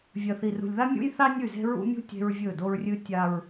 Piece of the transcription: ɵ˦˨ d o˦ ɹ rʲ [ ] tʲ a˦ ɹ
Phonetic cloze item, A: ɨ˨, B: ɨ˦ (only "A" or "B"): B